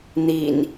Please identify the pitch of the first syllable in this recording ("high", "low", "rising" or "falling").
low